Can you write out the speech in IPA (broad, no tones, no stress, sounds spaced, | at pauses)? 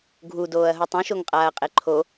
ɡʱ u d oː ɐ̯ ɦ u tˤ ũ ʃ o ŋ qʼ aː ɐ̯ qʼ e ǃʰ o